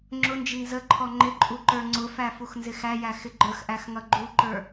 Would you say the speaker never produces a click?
no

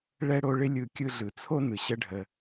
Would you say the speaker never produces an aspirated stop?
no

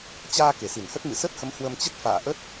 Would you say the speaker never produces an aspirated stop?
yes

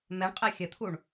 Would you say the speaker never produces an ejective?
no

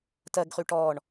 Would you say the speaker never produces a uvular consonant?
no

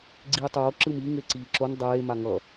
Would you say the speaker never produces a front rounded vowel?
yes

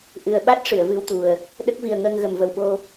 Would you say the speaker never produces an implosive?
no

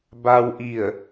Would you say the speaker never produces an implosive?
yes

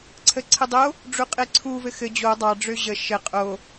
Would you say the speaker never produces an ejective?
no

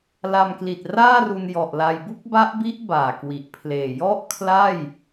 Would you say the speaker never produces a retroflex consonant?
yes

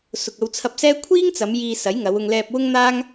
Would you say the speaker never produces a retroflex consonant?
yes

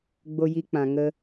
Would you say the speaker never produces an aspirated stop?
yes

